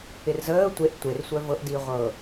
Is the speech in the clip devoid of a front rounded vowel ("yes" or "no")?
no